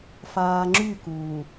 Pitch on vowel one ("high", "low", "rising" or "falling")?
low